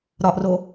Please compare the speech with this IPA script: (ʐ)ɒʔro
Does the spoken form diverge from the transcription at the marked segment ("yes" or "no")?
yes